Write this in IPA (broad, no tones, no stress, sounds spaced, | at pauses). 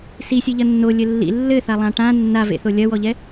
s i sʲ ɨ ʎ ɐ nː o lʲ ɘ lː ḭ lː ɘ θ a lˠ ã ʈ ã nː a v ḛ θ o lʲ ɐ w ɔ ʎ ɛ